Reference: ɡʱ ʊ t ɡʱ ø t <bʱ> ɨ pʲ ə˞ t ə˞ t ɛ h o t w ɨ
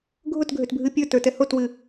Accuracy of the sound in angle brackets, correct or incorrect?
correct